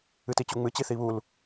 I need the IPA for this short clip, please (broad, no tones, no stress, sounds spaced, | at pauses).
ɨ t i t͡ɕ u ŋ͡m ɨ t͡ɕ i θ i β u l